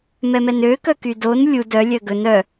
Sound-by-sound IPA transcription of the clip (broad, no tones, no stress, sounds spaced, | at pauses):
m ɛ m ɛ n ø k œ k y d o n lʲ u d œ lʲ œ ɡ ɵ n œ